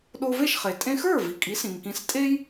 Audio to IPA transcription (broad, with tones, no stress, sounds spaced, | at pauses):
ɗ o˧ v e˥˩ ʃ χ e˩ tʼ ẽ˧ x ə˞˥˩ v i˩ kʼ i˩˥ s ĩ˩ ŋ k ĩ˩˥ s tʼ e˥ j